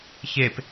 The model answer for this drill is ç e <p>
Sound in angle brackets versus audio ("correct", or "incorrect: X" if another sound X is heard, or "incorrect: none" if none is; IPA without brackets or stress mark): correct